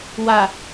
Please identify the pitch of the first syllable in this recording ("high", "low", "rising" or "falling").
low